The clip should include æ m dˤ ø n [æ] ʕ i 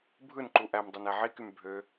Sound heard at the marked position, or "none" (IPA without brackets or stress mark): æ